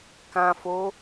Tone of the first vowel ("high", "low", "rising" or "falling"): low